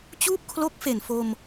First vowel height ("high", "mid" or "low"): high